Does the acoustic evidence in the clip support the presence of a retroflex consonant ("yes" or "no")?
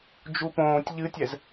no